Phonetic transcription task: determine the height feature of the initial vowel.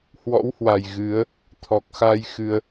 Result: mid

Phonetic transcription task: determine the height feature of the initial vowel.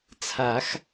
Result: low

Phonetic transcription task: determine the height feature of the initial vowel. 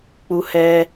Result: high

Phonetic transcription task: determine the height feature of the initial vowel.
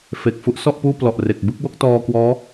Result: mid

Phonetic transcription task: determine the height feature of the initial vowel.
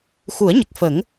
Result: high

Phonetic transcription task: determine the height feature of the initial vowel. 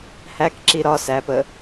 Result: low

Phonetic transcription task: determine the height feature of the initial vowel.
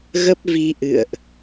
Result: mid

